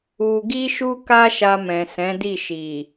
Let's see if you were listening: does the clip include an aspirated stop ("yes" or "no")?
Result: no